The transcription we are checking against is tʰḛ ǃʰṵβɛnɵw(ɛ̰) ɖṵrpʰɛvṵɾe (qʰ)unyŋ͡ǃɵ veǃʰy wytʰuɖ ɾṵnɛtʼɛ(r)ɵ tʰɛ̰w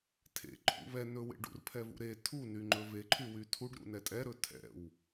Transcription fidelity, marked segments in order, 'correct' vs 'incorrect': incorrect, incorrect, incorrect

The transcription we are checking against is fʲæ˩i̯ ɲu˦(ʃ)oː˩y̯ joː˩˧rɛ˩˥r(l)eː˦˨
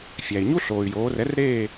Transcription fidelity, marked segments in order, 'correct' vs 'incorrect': incorrect, incorrect

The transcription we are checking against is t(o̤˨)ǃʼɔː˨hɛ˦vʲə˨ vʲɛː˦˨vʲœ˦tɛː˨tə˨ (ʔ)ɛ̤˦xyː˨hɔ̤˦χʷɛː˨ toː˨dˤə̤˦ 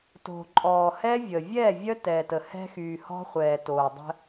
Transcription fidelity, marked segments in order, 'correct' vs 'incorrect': correct, incorrect

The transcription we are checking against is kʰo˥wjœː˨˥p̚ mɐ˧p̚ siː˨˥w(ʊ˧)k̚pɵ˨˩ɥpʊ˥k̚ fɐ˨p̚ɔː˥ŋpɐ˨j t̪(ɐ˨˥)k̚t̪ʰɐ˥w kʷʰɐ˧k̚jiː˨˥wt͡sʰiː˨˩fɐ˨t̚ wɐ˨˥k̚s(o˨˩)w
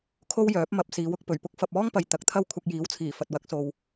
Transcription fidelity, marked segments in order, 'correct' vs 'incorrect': correct, incorrect, incorrect

